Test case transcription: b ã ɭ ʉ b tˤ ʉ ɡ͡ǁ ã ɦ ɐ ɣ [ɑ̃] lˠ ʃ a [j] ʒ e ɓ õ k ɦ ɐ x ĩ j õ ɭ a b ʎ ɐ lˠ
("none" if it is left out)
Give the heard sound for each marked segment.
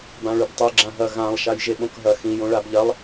ã, j

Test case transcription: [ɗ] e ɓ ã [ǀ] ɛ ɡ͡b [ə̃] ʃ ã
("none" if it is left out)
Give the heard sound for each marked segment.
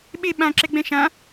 ɓ, ǁ, ɛ̃

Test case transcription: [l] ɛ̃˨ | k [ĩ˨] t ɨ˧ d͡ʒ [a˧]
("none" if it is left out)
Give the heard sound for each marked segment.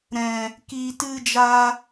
ɾ, i˨, a˧

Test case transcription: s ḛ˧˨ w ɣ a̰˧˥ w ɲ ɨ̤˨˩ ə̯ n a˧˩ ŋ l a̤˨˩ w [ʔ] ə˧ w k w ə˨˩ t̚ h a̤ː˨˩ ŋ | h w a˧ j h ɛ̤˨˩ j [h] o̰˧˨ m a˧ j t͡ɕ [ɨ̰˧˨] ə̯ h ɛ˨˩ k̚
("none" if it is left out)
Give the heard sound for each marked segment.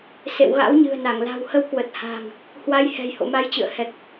h, h, ɨ̰˧˨

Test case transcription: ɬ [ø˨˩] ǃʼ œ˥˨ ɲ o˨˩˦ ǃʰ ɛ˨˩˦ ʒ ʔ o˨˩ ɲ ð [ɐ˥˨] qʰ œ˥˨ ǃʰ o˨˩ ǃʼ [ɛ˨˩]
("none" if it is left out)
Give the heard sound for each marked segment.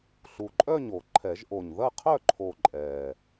u˨˩, ɐ˥˨, ɛ˨˩

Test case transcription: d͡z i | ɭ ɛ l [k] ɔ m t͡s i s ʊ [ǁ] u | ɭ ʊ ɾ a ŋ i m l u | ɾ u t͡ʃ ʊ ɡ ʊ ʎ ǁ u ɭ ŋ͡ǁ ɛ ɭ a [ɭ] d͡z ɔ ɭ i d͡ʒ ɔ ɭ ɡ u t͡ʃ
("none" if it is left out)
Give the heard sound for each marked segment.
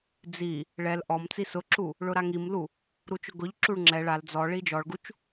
ʔ, ǁ, l

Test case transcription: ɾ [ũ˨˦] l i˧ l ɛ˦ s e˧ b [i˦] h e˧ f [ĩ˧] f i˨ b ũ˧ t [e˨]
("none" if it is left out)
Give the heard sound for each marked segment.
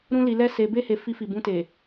ũ˦, e˦, i˧, e˨

